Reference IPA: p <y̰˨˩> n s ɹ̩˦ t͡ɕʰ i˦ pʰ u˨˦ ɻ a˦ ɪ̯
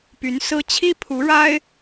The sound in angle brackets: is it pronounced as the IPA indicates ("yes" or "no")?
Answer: no